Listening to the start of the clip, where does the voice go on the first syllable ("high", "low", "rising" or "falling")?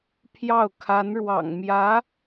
falling